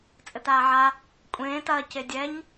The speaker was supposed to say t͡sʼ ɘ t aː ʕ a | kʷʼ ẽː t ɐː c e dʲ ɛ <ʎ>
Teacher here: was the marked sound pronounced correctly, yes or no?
no